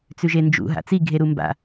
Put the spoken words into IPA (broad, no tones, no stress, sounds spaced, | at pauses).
t͡s ʉ ʒ e n d͡ʒ ṵ ɦ a̰ t͡s i ɡʱ e ɾ u m b a̰